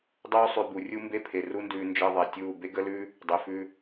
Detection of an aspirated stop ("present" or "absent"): present